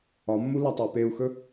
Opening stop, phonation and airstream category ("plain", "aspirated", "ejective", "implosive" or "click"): plain